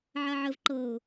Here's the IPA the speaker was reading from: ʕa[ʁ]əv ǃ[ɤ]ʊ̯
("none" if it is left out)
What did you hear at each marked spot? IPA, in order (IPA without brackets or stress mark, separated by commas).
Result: ʕ, ɤ